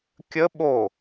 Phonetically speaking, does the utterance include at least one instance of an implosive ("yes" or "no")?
yes